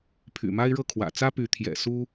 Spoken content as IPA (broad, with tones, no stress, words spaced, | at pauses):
pʰy̰˨˩ma˦ɪ̯ɻɤ˥˨kʰwä̰˨˩ t͡sä˦py˨˦ t̪ʰjɛ̰˨˩su˦